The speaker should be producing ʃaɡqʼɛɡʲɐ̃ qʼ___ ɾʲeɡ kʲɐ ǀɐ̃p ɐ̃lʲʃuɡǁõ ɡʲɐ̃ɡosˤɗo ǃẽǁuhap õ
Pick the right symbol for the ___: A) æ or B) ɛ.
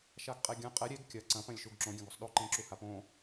B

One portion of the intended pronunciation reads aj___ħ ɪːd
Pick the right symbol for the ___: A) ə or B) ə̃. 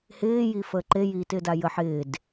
A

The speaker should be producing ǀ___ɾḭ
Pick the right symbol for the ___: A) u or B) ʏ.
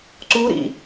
A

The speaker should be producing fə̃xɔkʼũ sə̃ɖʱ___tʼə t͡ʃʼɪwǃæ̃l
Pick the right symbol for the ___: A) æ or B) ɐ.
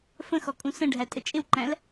A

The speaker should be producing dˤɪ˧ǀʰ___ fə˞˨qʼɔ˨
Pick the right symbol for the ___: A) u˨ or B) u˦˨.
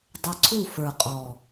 B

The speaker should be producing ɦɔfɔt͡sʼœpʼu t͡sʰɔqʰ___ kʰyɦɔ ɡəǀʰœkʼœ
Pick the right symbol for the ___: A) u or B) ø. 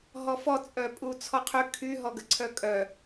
B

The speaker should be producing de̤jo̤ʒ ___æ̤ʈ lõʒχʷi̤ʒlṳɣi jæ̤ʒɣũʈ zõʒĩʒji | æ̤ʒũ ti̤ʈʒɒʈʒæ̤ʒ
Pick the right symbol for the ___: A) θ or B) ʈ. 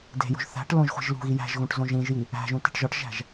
A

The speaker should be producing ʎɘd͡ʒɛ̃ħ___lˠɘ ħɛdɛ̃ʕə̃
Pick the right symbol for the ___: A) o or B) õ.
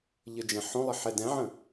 B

